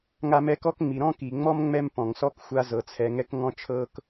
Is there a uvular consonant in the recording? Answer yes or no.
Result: no